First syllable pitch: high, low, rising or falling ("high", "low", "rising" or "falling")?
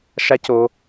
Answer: high